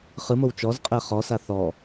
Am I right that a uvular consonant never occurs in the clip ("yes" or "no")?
no